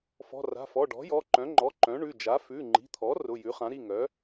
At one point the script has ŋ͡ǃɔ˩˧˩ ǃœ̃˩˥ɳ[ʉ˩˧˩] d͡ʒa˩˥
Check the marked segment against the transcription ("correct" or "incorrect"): correct